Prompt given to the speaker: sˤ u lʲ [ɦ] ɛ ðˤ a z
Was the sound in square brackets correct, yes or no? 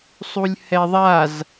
no